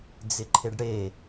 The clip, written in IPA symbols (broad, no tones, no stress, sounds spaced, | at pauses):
d͡z ɪ ǃʰ e ɖ ɽ e